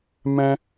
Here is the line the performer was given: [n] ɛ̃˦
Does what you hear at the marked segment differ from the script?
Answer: yes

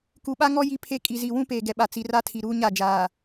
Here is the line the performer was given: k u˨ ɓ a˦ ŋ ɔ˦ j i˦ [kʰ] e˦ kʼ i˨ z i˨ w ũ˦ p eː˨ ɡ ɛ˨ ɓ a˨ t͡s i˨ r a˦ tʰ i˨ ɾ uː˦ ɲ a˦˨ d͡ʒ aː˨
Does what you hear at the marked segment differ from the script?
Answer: yes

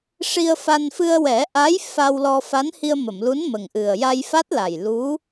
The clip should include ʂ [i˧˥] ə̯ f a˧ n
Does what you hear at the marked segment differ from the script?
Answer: yes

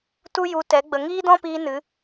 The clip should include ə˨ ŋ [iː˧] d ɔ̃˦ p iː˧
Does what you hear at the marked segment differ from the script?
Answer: yes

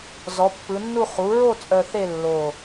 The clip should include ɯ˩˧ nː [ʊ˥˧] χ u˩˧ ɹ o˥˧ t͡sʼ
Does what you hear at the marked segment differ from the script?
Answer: yes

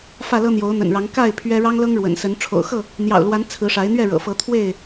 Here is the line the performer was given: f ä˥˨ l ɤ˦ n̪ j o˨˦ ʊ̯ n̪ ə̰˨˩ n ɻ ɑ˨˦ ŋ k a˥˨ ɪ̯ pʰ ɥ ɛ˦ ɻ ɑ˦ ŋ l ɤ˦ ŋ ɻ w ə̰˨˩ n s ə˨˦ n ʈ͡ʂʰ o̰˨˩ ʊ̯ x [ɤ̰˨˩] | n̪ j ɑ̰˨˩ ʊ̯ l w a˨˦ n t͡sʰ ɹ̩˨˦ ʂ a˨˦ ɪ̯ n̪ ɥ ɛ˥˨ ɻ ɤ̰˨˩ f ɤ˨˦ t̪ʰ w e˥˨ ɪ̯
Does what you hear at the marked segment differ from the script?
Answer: yes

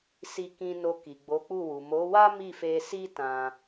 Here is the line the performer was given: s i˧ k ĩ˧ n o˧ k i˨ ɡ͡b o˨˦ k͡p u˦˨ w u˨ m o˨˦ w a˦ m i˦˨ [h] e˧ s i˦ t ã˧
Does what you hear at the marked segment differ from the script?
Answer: yes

